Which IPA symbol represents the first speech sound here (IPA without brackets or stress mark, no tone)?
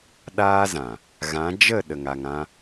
ɗ